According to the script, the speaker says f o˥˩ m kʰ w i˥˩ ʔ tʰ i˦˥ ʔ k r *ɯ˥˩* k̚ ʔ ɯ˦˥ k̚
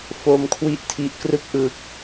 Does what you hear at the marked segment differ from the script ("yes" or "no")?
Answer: no